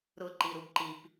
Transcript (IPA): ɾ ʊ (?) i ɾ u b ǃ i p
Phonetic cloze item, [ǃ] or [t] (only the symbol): ǃ